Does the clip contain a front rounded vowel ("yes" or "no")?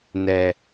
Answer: no